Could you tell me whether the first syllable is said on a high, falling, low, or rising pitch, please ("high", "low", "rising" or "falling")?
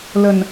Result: low